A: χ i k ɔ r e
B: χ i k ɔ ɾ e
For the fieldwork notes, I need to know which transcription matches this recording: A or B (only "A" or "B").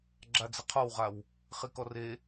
A